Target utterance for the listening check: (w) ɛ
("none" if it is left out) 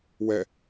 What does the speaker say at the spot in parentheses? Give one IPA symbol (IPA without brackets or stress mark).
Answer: w